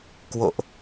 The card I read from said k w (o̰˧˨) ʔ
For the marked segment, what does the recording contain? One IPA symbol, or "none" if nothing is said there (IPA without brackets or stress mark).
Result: o̰˧˨